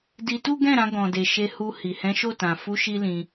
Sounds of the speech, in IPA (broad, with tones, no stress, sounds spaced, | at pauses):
d i˧ t u˦ ɡ ɛ̃˦˨ ɾ ã˧ ɡ ɔ̃˨ d e˨ ʃ e˧ h u˧ h i˨ h ɛ̃˨˦ ʃ o˦˨ t ã˨ f u˨˦ ʃ i˧ l ĩ˧